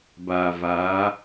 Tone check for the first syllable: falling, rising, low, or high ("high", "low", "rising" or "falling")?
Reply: low